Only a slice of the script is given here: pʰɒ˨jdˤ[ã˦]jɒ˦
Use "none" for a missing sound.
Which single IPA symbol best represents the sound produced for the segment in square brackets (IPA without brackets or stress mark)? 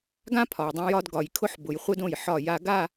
ã˦